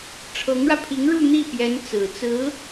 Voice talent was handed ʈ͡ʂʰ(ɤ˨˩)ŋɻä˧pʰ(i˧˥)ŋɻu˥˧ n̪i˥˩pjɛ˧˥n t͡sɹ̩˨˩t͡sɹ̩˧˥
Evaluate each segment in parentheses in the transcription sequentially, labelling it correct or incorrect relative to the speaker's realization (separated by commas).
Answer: incorrect, correct